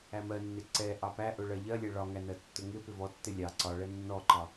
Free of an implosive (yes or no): yes